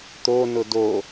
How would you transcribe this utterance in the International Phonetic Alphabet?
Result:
t̪ o n ʊ d o

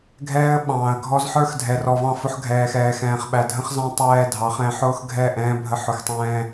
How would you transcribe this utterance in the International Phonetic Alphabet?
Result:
ɡʱ ɛː˦ ə̯ ɓ ɑ̃ː˨ ə̯ ɡʱ ɔ˦ z ħ ə˞˦ x dʱ ɛ˨ r ɔ˨ v ɑ̃˦˨ f ʊ˦ ħ ɡʱ ɛː˨ x ɛː˨ x ɛ̃ː˨ χ ɓ æ˨ dʱ ə̃˦ χ z ɑ̃˦ tˤ ɛː˦ dʱ ɑ˨˦ χ ɛ̃˨˦ ħ ʊː˦ x ɡʱ ɛ˦˨ ʔ ɛ̃ː˦ bʱ ə˦ ħ ʊ˨ x tˤ ɛ̃ː˦

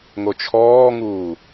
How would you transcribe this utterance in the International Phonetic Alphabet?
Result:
ŋ o t͡ʃʰ ɔː ŋ uː

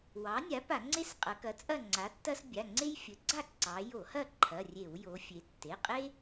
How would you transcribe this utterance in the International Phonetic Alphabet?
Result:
w ɑ˩˥ nʲ a˩˥ p a˧˩˧ ŋ͡ǀ e˥ s qʼ ɐ˩˧ k ɐ˩˥ t͡sʼ ɐ˥˨ ŋ͡ǀ a˩˥ tː ɐ˥ s bʲ a˩˧˩ ŋ͡ǀ e˥ j fʲ ə˩˥ ɡ͡ǀ a˥˨ ǀ ɑ˩˧ j o˧˩˧ h ɐ˥˨ ǃʰ ɐ˩˧˩ rʲ e˧˩˧ w j o˩˧ fʲ e˩˧ tː e˩˧˩ qʼ e˥

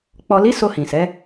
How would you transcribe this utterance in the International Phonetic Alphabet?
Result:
k͡p ɔ˨ l i˨˦ s o˧ h ĩ˨ s ɛ˨˦

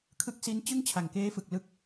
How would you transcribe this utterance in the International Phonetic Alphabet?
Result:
kʰ ɯ˦˥ k̚ s i˦˥ n t͡ɕ ɯ˥˩ ŋ t͡ɕʰ a˨˩ ŋ k eː˦˥ f ɯ˨˩ k̚ l ɯ˦˥ k̚

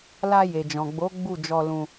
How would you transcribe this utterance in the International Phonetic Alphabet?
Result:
l a˧ j e˨ d͡ʒ ɔ̃˨ ɡ͡b o˨˦ ɡ͡b u˦˨ d͡ʒ ɔ˧ l ũ˧

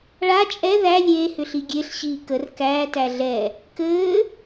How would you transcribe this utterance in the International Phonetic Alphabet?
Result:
ɭ a t͡ʃʼ ɛ ð æ lʲ eː h ʏ ɬ i ɡʲ e ɬ ɕ iː k ə r k æː t æ ɮ ɛ | k ɘː

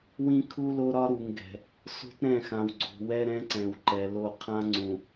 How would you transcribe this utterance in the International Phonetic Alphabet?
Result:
w ĩ˦ kʰ u˦ l o˦ ɾ ɒ˦ ɾ u˨ ŋ ɡ ɛ̤˨ | s o̤˦ t ɾ ɛ̃˦˨ x ã˨ w ɡ͡ǀ o̤˨ w ɛ˦ ɾ ɛ̃˦ ǀ ɛ̃˨ w ǃ ɛ˨ l o˦˨ qʰ ã˦ ŋ͡ǀ ũ˨

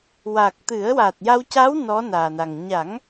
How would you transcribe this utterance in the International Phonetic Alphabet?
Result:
w a˨˩ k̚ t̪ ɨ˨˩˦ ə̯ w a˨˩ t̚ j a˧ w c a˧˥ w n ɔ˧˥ n aː˨˩ n a˨˩ ŋ ɲ a˨˩˦ ŋ

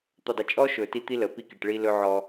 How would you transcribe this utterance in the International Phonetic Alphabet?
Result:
t̪ ɵ˨ dˤ ə˨ t͡ʃʼ ɔ˦ ʃ ɵ˨ t i˦ t̪ i˦ l ə˨ p i˦˨ k i˨ ʈ ɭ i˦ l ɵ˦ ʕ ɔ˦

